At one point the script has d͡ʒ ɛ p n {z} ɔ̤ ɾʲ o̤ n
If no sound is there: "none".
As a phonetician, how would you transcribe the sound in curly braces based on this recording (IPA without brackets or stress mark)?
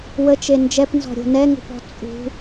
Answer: z